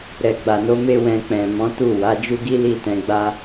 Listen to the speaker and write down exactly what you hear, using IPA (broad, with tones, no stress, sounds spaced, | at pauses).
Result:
ɾ ɛ˨ ɡ͡b a˨ n o˨˦ m e˦ w ɛ̃˧ k͡p ɛ̃˨ m ɔ̃˨˦ t u˦˨ w a˨˦ d͡ʒ u˦ ɡ i˦ l i˦˨ t ɛ̃˧ ɡ͡b a˦